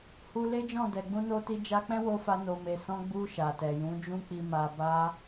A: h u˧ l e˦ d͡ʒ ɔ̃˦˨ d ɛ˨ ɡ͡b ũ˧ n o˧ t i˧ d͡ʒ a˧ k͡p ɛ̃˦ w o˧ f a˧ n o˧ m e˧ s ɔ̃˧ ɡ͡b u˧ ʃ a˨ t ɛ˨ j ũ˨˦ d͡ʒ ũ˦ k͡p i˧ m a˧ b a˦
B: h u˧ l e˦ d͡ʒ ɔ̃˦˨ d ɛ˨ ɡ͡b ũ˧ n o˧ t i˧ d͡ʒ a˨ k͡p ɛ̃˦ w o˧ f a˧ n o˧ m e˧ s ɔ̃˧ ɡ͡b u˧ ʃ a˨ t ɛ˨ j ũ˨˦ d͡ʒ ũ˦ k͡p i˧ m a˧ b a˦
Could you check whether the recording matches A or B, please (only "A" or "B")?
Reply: A